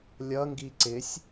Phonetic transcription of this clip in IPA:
lʲ ʌ ŋ ɡ i ǀ ɪ sʲ

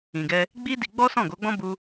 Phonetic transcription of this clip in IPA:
ĩ˨ ɡ ɛ˧ | ɡ͡b i˦ d i˧ ɡ͡b ɔ˦ s ɔ̃˦˨ ɡ o˨˦ ɡ͡b ɔ̃˦ b u˦

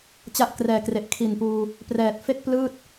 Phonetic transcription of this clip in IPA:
t͡ɕ a˦˥ ʔ k r ɛː˨˩ k r e˨˩ ʔ kʰ i˨˩ n p uː˧ | p r ɛː˨˩ t̚ f e˥˩ k̚ p l ɯː˥˩ t̚

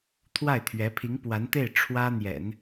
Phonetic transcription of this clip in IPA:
t̪ʰ w a˥˩ ɪ̯ t̪ʰ ɥ ɛ˧˥ pʰ i˧˥ ŋ p w a˧˥ n t̪ e˥˩ ɪ̯ ʈ͡ʂʰ w ä˥ n̪ j ɛ̰˨˩˦ n

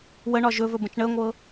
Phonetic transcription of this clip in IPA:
w ə ɳ ɒ ʒ ɵ v ɵ b ə̃ t͡ʃ ɳ əː ŋʷ ɤ

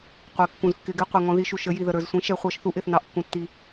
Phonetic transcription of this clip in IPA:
qʷ ɪː˩˧ kː ũ˩ z kː ɪː˩˧ ɡ ɛ˩˧ qʷ ɛ˩ ŋ ɔ̃˩˧ ð i˩˧ ʃ u˩ ʃ ə˩˧ j i˩ ð ə˩ ɾ ə˞˩ z sʷ ĩ˩˧ ʃ ɛ˩˧ χʷ ʌː˩˧ ʃ θ u˩˧ ʔ ɪː˩ θ n ɑ˩ ʔ kː ũ˩ tː i˩

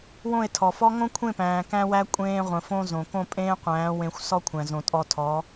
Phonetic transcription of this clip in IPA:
w õ˦˨ e̯ tʰ ɔ˨ f ɔ˦ ŋ õ˦ kʷʰ ẽ˦˨ p æ̃ː˨ k æ̃˧ w æ˧ kʷʼ ẽː˧ ʁʷ ə̃˨ f õ˧ z õ˨ k õ˦˨ pʼ ẽː˦ qʷ æ̃ː˨˦ w ẽ˧ xʷ s ɔ˦ kʷʰ æ̃˨ z õ˨ tʼ ɔ˧ tʰ ɔ˨˦

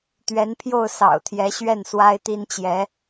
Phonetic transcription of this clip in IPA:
t̪ ɥ ɛ˧˥ n pʰ j o˥˩ ʊ̯ s ɑ̰˨˩ ʊ̯ t̪ʰ j ɛ˧˥ ɕ ɥ ɛ˥˩ n s w a˥ ɪ̯ t̪ i˥ n t͡ɕ j ɛ˧˥

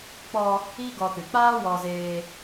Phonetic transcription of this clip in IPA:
k͡p ɔ˧ | i˦ ɡ ɔ˧ t ɨ˨ k͡p aː˦ w ɔ˧ z eː˧

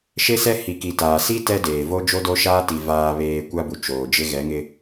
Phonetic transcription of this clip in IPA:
ʃ e˦ s ɛ˦ h i˨ k i˨ t aː˨ s i˦ t ɛ˦ d eː˨ v o˦ d͡ʒ o˦ d o˦ ʃ aː˦ t i˨ v aː˨ β eː˨ kʷ a˦ b u˨ t͡ʃ oː˨ d͡ʒ ɪ˦ ɣ ɛ˨˦ ŋ ɪ˦

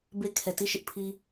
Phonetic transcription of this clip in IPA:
b e˦ kʰ ɛ˨ t i˦˨ ʃ ɪ˦ ʔ pʰ i˦

